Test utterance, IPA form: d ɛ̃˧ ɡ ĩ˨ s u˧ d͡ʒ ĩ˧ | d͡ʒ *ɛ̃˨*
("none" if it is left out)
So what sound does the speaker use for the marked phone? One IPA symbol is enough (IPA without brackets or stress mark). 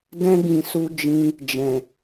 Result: ɛ̃˨